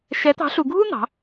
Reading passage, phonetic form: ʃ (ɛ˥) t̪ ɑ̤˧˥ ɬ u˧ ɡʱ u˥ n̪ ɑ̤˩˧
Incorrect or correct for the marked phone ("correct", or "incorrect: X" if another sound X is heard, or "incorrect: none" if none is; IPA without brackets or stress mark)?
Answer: incorrect: ɛ˧˥